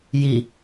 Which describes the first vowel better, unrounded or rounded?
unrounded